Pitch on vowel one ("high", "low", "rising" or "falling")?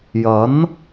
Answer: rising